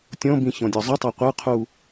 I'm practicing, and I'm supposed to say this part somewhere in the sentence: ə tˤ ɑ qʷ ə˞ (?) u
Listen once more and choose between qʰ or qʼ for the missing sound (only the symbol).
qʰ